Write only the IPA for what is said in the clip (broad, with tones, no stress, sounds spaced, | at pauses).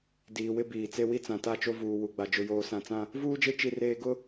d iː˨ w ɪ˦ b iː˨ t͡s e˦ w i˦ t͡s ã˨ t a˦˨ t͡ʃ o˦ v uː˨ w u˨ ɡ͡b a˨ d͡ʒ ʊ˨ j oː˨ s ã˨ t͡s ã˦ | v uː˦ d͡ʒ e˦ t͡ʃ i˦ r eː˦ ɡ ʊ˦